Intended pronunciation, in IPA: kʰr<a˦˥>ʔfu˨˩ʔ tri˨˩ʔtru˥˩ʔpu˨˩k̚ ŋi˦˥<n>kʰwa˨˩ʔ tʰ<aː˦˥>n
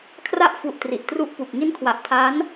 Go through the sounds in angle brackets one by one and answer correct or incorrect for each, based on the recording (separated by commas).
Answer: correct, correct, correct